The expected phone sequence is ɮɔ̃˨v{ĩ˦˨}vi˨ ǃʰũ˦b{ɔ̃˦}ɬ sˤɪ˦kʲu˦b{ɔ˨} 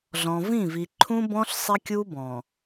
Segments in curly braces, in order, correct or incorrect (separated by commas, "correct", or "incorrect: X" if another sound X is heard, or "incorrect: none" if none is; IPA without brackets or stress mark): correct, correct, incorrect: ɔ̃˨